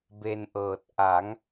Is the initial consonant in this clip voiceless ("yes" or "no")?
no